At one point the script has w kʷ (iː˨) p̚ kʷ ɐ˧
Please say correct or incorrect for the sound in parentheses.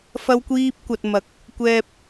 incorrect